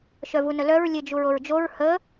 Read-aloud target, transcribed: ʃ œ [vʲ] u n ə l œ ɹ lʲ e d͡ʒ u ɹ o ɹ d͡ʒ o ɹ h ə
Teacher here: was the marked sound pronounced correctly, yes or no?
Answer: no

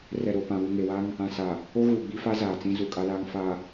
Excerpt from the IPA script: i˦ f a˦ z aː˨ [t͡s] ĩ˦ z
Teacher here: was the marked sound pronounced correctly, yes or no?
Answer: yes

